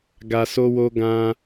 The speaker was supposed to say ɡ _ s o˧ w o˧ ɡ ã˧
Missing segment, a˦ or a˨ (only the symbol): a˨